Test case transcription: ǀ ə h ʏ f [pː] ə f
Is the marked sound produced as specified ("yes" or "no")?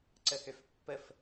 yes